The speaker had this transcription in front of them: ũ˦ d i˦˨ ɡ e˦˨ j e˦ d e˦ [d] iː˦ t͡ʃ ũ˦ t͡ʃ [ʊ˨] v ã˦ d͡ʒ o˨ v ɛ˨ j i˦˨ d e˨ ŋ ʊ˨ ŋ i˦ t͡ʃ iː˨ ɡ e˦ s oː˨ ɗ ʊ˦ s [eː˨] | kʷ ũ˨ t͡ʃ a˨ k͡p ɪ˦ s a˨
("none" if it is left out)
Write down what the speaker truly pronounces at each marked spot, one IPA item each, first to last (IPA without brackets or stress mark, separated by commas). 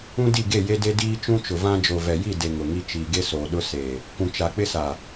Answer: d, ʊ˨, eː˨